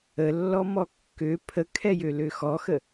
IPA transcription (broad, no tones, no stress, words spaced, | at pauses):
əlːɔmɔ kːø pʰəkʰɛjølø xɔxə